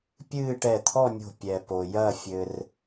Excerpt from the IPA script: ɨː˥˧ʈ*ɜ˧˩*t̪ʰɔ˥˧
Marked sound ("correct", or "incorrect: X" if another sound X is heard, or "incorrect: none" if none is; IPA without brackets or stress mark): incorrect: ɛ˧˩